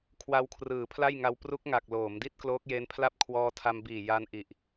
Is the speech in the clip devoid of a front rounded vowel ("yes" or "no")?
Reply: yes